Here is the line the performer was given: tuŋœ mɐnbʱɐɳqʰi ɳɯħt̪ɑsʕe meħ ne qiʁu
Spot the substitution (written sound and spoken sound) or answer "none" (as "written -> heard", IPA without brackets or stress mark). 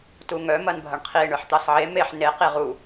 none